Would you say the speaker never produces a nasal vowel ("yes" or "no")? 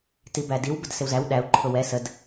yes